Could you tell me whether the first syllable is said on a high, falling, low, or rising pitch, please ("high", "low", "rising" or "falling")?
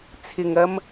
low